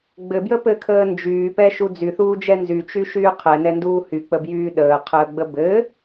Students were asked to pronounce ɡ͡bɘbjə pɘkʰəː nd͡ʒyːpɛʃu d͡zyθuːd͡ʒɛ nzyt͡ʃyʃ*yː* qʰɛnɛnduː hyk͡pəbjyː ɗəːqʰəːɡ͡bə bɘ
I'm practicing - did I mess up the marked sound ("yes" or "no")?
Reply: no